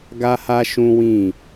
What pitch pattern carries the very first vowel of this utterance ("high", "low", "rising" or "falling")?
high